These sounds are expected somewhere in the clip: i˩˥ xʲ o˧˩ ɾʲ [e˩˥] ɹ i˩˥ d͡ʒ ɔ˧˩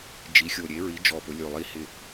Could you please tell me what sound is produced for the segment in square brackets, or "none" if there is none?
e˩˥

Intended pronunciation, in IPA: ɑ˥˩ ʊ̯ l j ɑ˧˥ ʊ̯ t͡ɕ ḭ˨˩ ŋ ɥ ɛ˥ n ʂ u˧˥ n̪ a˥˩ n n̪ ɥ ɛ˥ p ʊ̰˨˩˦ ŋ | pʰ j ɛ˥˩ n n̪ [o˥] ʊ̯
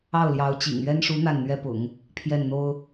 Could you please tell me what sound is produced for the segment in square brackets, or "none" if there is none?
o˥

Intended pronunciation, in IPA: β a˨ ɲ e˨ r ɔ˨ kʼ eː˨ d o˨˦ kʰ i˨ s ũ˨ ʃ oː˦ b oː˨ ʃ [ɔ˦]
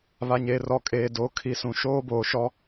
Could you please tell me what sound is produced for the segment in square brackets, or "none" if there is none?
ɔ˦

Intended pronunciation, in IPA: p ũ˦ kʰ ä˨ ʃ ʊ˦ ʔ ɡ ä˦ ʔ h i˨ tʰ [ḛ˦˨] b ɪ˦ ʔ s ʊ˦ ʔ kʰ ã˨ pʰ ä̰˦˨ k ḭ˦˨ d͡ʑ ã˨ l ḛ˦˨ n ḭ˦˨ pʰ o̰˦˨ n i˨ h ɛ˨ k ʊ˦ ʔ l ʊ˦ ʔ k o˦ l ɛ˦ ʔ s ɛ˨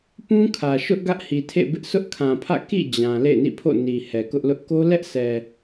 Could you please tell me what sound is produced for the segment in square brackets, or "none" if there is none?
ḛ˦˨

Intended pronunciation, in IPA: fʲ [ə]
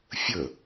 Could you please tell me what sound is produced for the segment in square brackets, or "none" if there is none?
ə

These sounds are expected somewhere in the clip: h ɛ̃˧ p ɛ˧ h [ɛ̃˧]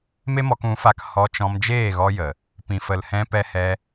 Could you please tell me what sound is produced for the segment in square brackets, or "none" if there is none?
ɛ˧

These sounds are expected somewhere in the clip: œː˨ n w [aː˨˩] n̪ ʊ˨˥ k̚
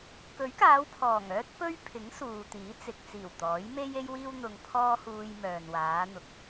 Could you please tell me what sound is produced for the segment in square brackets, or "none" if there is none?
aː˨˧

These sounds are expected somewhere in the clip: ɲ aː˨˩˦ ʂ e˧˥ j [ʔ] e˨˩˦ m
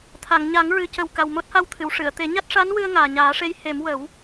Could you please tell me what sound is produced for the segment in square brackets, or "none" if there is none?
h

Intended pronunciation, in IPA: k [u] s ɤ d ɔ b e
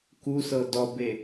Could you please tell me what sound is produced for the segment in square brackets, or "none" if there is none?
u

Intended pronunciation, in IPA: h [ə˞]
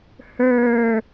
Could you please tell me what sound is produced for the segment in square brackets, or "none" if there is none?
ə˞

